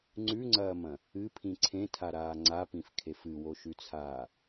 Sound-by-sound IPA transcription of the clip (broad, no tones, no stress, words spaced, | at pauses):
ŋ͡ǀʉŋ͡ǀɐːmɐ̃ | ɨpʰĩ ǀʰẽtʰaɾaː ŋ͡ǀapĩfkʰef ɨwoʃʉt͡sʰaː